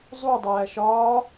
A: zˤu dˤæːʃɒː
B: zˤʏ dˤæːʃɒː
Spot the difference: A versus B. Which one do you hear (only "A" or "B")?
A